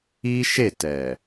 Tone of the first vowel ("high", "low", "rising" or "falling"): high